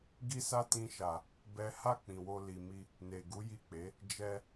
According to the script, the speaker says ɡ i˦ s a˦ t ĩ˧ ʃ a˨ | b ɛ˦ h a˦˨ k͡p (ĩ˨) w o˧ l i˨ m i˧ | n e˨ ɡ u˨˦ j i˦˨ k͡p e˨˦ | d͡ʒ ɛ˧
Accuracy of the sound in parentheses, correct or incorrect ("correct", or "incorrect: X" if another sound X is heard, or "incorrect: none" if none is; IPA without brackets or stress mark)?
correct